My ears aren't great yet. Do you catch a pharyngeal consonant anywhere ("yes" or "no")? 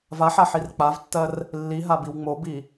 yes